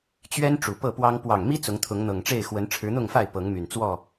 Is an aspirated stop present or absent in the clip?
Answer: present